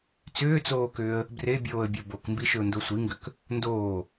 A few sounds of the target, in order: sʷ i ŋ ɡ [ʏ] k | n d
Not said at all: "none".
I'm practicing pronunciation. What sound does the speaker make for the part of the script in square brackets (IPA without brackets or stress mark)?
ʏ